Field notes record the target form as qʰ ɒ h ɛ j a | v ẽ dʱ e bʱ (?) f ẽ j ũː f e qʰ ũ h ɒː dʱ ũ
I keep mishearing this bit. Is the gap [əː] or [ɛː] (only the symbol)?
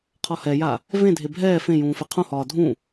ɛː